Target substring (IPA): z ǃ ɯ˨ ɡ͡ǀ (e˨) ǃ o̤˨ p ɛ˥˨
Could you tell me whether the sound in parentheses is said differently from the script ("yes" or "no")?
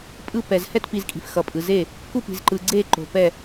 yes